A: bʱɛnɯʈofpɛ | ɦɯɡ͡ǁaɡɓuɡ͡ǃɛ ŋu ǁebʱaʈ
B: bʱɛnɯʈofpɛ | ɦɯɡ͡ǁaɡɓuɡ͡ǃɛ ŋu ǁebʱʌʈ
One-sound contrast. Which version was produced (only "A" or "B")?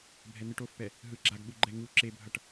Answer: B